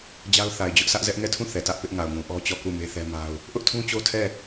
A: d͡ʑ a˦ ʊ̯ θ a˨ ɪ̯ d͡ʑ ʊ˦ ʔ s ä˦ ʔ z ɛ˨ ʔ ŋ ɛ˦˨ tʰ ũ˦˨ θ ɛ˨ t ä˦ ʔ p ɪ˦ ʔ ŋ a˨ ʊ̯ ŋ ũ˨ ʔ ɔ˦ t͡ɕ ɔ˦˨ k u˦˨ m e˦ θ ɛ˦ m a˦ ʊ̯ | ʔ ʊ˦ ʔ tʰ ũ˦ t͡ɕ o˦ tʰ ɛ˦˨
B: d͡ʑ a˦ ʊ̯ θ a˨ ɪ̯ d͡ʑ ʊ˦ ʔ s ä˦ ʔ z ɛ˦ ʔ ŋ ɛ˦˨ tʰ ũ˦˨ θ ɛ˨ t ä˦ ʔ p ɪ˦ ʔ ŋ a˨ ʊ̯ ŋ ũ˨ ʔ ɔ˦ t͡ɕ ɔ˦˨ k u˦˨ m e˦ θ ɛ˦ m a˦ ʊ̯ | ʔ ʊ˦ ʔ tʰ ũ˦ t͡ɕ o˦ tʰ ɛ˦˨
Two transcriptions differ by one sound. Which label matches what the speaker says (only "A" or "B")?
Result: B